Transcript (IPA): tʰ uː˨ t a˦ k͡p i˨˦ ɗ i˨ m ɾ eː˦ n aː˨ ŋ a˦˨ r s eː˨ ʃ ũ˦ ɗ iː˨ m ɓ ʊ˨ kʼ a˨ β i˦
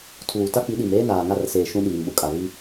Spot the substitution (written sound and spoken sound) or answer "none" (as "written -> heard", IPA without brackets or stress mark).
none